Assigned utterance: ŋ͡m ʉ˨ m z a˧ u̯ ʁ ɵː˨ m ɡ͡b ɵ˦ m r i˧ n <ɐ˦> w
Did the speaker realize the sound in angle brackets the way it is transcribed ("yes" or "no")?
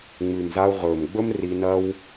yes